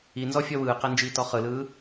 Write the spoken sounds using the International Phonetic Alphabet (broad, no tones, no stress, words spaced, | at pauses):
inzɔ fʲɔwɯːqɛ nd͡ʒiːtɔχɯlɯː